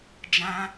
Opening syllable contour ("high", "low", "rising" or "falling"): high